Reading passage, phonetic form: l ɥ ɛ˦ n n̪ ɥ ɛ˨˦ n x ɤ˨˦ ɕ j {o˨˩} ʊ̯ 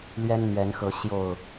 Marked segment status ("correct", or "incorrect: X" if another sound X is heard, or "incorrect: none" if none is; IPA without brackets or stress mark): correct